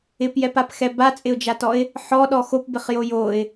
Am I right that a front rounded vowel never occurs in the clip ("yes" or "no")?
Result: yes